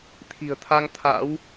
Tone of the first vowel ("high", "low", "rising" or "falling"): low